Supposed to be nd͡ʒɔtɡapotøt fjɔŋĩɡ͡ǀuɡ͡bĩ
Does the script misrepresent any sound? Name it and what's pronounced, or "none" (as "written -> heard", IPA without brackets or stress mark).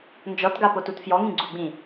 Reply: ø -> u